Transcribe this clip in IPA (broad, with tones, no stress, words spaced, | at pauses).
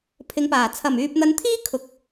pʰɪ˨˧ŋpaː˨˩ t͡sʰɐ˨˩myː˨p̚n̪ɐ˨˧nt̪ʰiː˥ kʰʊ˨k̚